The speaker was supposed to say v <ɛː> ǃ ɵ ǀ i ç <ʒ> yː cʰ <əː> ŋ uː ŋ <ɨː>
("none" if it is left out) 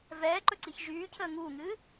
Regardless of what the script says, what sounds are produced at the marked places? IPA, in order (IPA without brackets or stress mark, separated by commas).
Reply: ɛː, ʒ, əː, ɨː